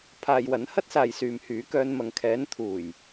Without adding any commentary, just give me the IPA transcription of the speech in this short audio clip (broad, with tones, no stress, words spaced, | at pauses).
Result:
pʰaː˨j wɐ˨˥nhɐ˥t̚saː˨j syː˨mhyː˨˥kœː˧n mɐ˨ŋkʰɛː˨˥n t̪ʰuː˨˩j